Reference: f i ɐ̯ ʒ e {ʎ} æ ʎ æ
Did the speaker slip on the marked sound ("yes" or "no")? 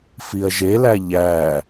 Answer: yes